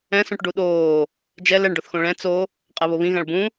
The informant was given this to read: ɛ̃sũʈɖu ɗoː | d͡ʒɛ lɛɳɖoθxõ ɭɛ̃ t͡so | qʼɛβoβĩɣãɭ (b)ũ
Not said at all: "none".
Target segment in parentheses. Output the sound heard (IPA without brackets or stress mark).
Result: b